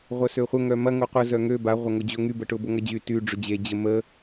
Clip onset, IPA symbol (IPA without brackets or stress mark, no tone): ʁʷ